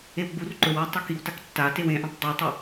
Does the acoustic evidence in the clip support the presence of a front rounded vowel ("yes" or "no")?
no